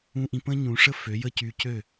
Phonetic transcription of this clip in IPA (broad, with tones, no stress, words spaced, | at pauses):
ũ˧ʔĩ˧pə̃˥ ɲũ˩˥ʂə˥ fø˩˥jə˥˩cy˧ cø˥˩